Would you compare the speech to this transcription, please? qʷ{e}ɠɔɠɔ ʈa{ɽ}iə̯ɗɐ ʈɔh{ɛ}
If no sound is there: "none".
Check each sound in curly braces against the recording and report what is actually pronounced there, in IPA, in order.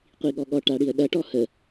i, ɽ, ə

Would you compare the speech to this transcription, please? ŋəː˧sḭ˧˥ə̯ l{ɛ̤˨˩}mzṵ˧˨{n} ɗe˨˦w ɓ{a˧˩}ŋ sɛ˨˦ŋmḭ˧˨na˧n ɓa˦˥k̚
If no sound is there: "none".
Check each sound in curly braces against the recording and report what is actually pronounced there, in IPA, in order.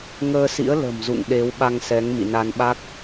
ə̤˨˩, ŋ, a˧

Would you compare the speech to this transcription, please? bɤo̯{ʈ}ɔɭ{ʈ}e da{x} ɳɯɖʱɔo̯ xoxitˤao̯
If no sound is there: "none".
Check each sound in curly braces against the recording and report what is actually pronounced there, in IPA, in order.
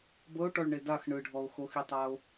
ʈ, ɳ, x

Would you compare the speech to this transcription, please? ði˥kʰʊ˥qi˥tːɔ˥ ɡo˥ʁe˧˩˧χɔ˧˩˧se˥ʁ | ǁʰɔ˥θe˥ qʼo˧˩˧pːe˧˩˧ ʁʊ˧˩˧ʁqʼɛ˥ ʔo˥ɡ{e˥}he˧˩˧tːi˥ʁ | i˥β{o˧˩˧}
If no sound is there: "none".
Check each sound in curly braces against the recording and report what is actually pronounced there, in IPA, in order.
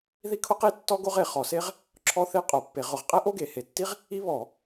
e˧˩˧, ɔ˧˩˧

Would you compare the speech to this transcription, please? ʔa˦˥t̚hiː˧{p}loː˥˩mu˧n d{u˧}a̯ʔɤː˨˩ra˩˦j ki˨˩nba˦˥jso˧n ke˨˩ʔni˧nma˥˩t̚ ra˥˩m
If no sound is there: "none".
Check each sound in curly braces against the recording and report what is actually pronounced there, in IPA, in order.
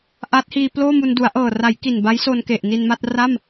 p, u˩˦

